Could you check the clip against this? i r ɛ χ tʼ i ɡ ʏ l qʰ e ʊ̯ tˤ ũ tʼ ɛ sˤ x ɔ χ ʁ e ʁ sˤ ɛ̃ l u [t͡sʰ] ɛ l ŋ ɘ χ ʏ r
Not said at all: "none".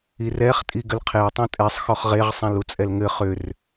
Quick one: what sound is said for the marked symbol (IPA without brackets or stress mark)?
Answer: t͡sʼ